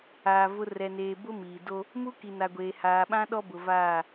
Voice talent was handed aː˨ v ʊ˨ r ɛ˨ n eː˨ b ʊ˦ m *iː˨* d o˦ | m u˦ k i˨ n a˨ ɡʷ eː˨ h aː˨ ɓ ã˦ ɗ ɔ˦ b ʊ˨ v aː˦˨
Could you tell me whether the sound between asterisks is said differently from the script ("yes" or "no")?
no